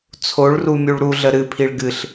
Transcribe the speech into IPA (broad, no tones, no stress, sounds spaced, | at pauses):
t͡sʰ o ɭ r u mʲ u ɭ ɾ u ɮ ə ɾ ɨ pʰ i ɭ ɡ ɨ ɬ